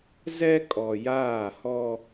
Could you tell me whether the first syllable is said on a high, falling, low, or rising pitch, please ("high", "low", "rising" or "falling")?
high